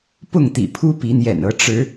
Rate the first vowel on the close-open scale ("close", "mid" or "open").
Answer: close